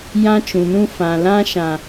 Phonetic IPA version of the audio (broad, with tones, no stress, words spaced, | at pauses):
jã˦t͡ʃũ˨nũ˦ fã˨lã˦ ʃã˦